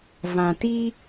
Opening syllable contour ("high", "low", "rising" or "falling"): low